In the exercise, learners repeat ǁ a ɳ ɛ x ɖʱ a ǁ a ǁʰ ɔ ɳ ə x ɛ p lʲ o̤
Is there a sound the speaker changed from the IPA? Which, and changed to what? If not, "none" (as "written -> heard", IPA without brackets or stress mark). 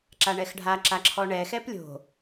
ə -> ɛ